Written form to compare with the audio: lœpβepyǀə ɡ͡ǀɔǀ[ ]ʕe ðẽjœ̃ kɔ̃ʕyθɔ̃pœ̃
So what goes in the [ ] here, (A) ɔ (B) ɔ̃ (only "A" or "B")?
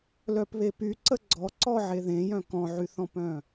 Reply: A